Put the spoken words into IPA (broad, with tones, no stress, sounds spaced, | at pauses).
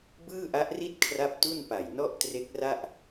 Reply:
b ɯː˥˩ ʔ a˦˥ ʔ r i˥˩ t̚ kʰ r a˥˩ p̚ t u˥˩ n p a˨˩ j n ɔ˥˩ ʔ t r e˦˥ k̚ r a˥˩ ʔ